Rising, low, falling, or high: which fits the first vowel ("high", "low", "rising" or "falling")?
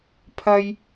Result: high